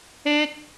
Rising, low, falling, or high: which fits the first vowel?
high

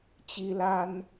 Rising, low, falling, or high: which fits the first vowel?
high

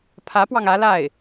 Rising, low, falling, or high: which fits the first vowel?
rising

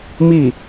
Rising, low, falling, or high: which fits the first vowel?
falling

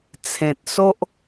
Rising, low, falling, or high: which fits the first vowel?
low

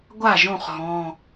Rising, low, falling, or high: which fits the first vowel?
falling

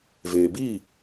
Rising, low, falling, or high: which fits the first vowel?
low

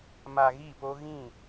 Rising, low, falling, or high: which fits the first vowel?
low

